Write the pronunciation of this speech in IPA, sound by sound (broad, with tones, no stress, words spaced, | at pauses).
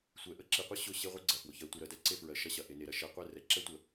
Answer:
sʷɛ˨ʔə˦ǁi˨qʷɯ˦ ɕʊ˦˨ɕe˦ʁʷe˦ ɡ͡ǀɐ˨fwʊ˨ çɜ˨ tʷɯ˨ɾɜ˨dɛ˦ǀe˦ fɹɜ˨ʃɐ˦ɕɐ˨ ʔe˨ne˨ɾɐ˨ ʃɛ˨qʷɛ˦˨ rɛ˨ ǁɛ˦tʷə˨